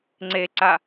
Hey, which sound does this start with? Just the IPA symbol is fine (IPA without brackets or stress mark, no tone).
ŋ͡ǀ